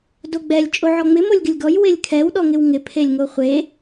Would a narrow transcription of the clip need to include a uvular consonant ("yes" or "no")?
yes